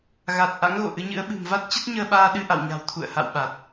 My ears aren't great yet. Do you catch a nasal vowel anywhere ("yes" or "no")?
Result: no